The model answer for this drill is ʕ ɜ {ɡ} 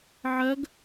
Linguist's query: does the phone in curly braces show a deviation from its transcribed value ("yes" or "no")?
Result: no